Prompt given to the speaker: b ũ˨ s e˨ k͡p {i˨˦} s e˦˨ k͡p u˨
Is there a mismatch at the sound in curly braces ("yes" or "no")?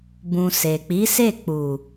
no